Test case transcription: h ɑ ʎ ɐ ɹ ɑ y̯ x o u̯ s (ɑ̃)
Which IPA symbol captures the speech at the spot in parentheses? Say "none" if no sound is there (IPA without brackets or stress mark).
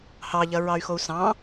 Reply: ɑ̃